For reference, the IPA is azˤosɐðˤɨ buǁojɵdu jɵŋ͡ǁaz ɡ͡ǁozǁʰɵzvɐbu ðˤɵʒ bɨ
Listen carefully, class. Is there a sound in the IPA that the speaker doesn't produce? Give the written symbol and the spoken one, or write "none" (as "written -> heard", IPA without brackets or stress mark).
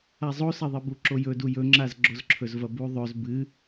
ʒ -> z